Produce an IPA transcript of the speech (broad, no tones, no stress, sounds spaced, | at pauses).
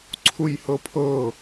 ǀʰ u j h ɤ pʰ ɤ